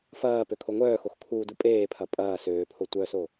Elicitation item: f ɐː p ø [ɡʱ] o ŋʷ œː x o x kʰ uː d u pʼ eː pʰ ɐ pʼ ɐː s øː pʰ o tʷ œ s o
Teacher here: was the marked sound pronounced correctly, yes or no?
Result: no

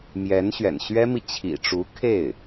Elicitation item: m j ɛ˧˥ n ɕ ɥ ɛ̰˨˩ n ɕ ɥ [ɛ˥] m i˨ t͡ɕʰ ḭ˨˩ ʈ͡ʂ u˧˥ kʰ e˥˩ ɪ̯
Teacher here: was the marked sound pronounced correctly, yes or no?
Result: yes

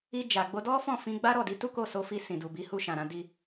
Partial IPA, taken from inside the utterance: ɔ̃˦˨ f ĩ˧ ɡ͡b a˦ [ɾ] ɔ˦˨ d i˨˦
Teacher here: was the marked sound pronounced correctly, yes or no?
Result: yes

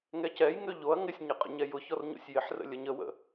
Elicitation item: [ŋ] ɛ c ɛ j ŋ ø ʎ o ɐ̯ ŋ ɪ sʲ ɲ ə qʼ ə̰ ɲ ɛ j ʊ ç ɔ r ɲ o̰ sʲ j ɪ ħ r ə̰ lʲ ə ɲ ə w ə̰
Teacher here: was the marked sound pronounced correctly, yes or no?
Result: yes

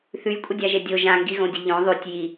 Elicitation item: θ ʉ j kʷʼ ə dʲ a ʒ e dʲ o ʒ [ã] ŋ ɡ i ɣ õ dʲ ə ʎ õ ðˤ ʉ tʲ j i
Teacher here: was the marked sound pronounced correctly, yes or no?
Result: yes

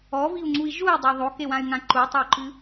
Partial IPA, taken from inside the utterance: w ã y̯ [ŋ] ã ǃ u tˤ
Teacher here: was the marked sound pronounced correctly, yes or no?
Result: yes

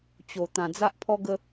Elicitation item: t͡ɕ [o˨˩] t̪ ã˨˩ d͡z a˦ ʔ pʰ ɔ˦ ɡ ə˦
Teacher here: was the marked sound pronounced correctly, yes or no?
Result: yes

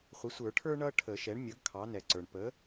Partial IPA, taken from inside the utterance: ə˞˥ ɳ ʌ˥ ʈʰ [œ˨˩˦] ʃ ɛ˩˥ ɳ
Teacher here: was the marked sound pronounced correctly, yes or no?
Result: no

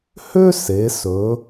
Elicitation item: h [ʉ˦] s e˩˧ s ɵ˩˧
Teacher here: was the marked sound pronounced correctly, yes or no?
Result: no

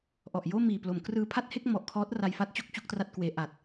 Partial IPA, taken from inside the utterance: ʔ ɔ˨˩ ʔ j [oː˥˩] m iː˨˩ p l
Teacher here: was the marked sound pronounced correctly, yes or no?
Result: yes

